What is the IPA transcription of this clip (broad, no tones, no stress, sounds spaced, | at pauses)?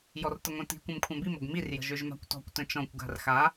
j ɔ r t ə ŋʷ œ̃ t i̤ kʷ œ̃ m kʷʰ œ̃ b i m o ɡ m i r j ə̤ ʒ ø ʒ m a̤ kʷ t ɔ̤ kʷ t ə̃ t͡ʃ ɔ̃ kʷ ɡ a̤ r x a